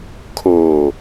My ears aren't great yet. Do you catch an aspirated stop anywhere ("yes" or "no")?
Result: yes